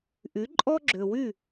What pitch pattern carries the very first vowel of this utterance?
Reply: rising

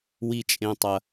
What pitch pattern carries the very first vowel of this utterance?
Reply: low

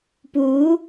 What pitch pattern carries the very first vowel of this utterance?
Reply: rising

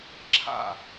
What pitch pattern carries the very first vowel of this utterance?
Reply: falling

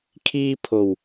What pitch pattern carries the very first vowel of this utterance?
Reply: high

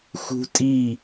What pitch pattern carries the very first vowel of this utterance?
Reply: high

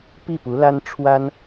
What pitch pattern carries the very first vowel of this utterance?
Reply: falling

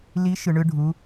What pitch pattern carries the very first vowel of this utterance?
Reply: rising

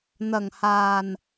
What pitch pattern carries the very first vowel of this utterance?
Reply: low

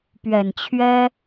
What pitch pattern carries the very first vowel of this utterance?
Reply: low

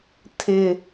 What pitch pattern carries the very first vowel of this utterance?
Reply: low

